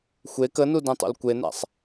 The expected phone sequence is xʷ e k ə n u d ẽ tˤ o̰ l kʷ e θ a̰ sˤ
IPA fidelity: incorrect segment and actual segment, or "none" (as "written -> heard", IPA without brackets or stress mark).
θ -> n